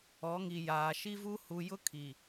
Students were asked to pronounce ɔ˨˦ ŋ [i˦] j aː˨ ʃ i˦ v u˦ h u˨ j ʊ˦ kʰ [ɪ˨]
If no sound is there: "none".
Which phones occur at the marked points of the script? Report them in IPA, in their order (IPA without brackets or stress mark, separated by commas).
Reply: i˨, i˨